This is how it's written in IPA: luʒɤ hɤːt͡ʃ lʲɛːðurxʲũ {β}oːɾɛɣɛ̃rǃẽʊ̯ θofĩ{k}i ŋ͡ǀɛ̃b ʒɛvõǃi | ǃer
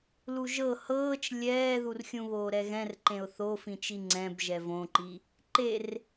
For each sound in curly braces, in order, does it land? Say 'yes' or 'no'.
yes, no

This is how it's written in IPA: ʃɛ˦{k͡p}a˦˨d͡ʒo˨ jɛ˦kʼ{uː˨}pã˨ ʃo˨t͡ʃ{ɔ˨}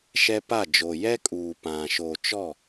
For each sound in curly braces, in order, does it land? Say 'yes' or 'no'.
no, yes, no

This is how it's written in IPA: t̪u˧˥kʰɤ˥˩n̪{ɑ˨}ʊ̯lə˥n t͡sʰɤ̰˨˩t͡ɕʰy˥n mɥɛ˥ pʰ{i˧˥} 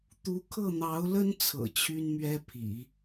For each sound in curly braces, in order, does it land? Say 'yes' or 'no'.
no, no

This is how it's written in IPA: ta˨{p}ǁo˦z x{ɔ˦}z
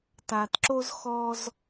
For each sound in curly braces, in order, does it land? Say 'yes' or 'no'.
no, yes

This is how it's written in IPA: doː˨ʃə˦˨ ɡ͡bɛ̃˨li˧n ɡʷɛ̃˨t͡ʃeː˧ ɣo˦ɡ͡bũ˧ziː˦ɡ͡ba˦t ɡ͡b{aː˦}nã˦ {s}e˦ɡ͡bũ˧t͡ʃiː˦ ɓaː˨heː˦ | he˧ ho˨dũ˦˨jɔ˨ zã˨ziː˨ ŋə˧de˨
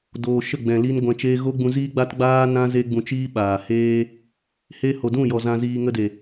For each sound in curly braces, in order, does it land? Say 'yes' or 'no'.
yes, no

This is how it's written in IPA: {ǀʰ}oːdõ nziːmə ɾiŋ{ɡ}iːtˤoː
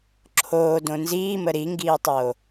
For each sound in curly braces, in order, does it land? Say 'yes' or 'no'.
no, yes

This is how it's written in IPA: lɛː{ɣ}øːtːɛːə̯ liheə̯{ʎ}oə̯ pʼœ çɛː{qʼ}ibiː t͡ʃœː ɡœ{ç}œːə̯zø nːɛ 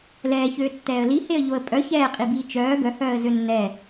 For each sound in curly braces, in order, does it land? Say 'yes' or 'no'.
no, yes, yes, no

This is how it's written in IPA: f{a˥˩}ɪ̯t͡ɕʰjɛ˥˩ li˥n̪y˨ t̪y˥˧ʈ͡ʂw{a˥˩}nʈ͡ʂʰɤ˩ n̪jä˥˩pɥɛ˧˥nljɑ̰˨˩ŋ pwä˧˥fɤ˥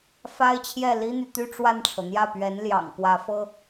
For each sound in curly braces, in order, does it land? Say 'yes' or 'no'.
no, yes

